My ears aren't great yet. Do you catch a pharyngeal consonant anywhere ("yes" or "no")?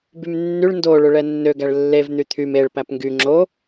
no